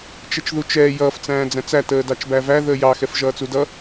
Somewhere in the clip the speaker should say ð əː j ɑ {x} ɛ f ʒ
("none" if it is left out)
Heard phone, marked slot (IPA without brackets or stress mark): x